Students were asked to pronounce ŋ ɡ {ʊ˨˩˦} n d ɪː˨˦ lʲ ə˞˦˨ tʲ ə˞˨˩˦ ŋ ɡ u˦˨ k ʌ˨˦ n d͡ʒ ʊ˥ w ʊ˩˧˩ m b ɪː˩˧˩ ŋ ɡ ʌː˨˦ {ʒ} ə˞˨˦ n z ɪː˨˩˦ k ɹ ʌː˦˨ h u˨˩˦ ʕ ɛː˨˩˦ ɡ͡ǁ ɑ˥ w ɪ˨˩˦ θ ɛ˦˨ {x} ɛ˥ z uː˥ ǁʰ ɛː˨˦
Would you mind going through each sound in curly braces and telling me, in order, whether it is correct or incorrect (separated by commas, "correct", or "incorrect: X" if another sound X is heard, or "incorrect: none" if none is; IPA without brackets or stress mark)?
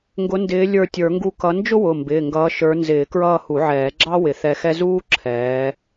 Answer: incorrect: ʊ˨˦, incorrect: ʃ, correct